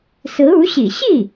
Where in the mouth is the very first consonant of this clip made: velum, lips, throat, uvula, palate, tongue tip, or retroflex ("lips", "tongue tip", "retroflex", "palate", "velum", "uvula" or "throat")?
tongue tip